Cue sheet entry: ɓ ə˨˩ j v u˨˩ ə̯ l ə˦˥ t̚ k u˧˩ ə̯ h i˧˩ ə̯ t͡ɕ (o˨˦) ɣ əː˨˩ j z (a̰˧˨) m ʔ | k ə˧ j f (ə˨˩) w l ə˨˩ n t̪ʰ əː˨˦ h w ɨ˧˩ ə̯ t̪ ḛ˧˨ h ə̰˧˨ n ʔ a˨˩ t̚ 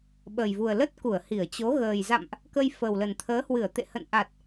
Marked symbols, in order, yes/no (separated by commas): yes, yes, yes